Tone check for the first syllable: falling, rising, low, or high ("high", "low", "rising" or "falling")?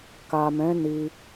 low